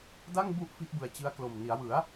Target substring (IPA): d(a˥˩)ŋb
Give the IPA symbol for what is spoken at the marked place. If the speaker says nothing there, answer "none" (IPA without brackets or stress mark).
a˥˩